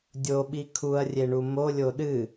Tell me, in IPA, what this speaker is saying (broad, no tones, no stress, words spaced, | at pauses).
dʲoɓi kʰuɐ̯rʲeɳu molʲo ɗɨ